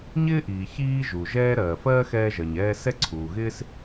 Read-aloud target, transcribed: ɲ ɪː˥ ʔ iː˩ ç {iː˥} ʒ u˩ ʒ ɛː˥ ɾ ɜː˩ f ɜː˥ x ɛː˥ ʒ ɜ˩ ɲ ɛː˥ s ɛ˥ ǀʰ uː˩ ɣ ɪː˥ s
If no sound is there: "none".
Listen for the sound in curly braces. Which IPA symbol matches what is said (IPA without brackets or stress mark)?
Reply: iː˥